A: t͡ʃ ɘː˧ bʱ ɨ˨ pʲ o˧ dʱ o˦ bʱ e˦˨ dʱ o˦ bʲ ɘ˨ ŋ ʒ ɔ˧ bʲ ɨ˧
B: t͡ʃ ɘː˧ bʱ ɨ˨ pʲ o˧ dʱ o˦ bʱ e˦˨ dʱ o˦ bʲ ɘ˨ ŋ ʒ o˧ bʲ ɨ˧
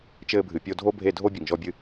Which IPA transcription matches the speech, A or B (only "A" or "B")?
A